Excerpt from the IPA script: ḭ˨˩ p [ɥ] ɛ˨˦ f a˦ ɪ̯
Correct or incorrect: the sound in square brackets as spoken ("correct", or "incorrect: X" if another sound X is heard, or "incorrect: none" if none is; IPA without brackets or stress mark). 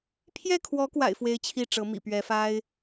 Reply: correct